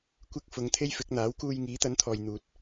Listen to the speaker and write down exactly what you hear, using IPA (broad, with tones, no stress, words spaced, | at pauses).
kʷɪ˧k̚ fʊ˨˧ŋt̪ʰe˥jfɪ˨˥k̚ n̪aː˨˥wkuː˧j ŋiː˨˥t̪ɐ˨˥nt̪ʰɔː˨jn̪uː˨t̚